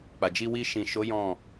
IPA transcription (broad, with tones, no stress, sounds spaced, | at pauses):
k͡p a˨ d͡ʒ i˧ w i˧ ʃ ĩ˨ ʃ o˨˦ j ɔ̃˦˨